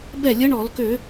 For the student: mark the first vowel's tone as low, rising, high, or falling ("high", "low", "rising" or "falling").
falling